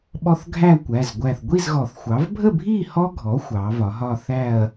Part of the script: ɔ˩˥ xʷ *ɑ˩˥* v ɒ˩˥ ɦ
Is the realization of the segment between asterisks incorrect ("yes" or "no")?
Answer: no